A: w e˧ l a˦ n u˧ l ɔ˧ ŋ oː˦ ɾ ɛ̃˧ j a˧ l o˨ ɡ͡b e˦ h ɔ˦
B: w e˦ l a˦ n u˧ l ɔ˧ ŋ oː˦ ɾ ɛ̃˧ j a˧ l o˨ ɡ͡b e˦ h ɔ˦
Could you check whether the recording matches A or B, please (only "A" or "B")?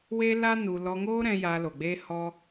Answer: B